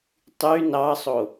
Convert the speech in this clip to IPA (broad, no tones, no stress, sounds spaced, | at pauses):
tˤ y n ɑ sˤ o